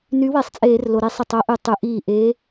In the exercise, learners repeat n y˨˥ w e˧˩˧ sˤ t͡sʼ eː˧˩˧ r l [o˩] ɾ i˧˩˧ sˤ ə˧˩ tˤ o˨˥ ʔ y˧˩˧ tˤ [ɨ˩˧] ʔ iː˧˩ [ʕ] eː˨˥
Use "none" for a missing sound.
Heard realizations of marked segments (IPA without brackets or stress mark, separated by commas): o˩, ʉ˩˧, ʔ